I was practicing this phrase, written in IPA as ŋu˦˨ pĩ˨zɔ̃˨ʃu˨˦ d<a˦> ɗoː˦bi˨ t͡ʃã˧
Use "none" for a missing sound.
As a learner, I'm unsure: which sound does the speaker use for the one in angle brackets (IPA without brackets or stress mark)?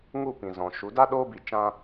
a˦